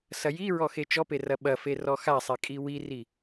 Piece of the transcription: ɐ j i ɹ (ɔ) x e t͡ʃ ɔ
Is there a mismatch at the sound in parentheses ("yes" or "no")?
no